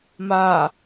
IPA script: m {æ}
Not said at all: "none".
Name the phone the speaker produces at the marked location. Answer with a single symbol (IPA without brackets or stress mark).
a